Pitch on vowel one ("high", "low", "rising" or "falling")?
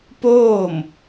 falling